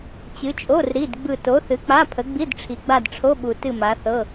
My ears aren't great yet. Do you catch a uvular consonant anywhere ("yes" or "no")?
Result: no